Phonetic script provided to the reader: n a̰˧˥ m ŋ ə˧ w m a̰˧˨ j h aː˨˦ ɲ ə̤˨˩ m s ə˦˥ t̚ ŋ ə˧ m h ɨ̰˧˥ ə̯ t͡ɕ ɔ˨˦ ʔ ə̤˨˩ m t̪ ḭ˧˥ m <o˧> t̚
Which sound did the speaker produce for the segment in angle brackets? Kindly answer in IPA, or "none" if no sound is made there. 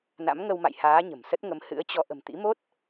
o˦˥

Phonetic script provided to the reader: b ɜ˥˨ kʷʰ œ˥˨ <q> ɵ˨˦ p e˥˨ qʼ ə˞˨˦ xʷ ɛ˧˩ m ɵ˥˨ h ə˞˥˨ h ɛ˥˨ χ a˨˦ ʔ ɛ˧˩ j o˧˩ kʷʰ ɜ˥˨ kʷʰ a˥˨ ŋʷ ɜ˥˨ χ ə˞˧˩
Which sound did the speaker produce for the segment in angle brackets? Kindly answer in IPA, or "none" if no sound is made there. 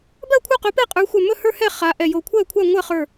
q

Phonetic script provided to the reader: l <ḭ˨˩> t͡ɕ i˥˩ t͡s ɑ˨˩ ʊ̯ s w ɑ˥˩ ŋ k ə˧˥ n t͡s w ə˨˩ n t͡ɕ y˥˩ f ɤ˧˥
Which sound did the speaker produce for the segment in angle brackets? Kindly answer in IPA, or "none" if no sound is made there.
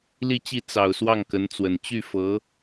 i˥˧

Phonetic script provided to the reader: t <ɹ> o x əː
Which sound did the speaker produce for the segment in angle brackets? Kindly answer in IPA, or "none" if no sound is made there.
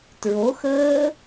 ɹ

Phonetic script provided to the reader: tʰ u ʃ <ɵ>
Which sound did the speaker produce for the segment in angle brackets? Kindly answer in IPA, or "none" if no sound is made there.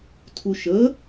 ə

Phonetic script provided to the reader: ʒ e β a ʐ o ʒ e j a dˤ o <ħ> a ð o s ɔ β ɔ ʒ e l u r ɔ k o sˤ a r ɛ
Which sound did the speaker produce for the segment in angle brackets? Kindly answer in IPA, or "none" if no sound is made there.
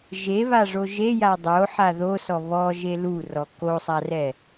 ħ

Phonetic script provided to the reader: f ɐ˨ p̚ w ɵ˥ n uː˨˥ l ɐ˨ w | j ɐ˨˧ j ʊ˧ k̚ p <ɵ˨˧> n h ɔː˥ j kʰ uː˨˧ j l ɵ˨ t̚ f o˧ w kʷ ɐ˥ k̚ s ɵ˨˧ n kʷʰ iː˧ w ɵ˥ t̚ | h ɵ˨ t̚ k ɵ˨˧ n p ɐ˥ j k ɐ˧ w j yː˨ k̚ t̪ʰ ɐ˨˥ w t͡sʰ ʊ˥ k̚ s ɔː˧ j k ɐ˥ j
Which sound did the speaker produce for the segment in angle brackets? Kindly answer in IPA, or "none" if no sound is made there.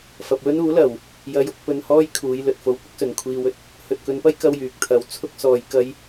ɵ˧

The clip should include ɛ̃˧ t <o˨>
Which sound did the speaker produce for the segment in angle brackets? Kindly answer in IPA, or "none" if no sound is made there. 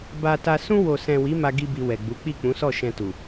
u˨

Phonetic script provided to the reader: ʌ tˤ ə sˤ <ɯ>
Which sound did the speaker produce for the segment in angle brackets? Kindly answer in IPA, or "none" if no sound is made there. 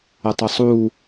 u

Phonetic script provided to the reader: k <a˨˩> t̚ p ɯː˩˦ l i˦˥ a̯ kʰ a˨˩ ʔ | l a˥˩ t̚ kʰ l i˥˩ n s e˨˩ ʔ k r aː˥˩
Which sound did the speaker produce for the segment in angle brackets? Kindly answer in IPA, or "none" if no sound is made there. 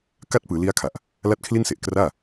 a˥˩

